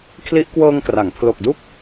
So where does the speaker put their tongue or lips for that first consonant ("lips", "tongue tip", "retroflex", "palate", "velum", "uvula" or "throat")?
velum